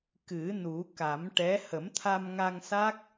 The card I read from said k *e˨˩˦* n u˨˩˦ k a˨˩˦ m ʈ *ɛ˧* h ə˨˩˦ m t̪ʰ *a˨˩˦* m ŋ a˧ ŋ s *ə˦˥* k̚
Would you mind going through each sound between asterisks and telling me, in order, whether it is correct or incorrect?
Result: incorrect, incorrect, incorrect, incorrect

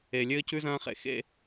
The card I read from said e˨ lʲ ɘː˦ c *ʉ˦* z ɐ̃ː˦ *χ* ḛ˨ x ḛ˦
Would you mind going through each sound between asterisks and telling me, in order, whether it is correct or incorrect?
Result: correct, correct

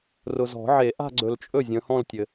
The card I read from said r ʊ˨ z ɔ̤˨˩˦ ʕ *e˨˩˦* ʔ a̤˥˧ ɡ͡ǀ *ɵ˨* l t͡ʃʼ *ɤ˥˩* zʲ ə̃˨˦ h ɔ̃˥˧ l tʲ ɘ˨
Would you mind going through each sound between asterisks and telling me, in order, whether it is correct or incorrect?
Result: correct, correct, incorrect

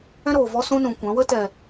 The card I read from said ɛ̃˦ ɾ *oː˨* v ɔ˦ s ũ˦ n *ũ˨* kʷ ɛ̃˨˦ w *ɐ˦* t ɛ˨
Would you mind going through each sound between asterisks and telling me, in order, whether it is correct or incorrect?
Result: correct, correct, incorrect

